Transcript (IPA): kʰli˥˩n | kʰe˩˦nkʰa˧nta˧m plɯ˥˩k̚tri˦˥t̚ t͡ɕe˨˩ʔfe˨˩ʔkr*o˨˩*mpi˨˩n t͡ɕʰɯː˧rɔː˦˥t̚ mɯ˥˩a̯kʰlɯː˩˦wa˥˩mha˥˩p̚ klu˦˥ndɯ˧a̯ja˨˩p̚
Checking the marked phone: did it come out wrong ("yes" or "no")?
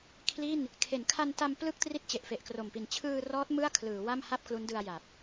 no